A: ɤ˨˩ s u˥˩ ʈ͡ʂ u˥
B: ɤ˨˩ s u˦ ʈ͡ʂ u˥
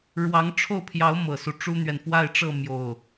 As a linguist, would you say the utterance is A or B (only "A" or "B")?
B